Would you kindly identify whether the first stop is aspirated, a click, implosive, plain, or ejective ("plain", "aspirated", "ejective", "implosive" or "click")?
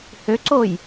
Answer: click